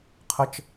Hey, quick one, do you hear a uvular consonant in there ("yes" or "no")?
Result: yes